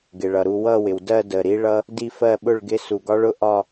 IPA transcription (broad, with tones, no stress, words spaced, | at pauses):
ɡɪ˨ɭʌ˨ɾu˥˧ wʌ˥˧wɪ˨wdɜ˥˧ də˨ɾi˦˥ɭʌ˦˥ | di˥˧fɜ˥˧ɓʊ˥˧ɭɡɪ˦˥ su˨ɡɒ˦˥ɭʊ˥˧ ʔɒ˥˧